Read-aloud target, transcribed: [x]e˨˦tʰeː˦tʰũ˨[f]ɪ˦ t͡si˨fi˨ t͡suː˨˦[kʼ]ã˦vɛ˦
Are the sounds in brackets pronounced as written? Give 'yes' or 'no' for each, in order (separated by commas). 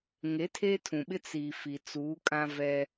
no, no, yes